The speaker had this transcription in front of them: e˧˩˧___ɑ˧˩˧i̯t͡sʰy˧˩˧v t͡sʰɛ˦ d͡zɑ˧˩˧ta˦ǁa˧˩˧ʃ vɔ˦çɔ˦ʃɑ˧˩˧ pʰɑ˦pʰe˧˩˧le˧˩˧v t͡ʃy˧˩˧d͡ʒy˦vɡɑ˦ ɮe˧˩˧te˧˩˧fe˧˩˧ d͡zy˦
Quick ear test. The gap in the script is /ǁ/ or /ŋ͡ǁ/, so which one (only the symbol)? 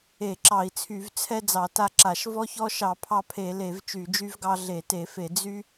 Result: ǁ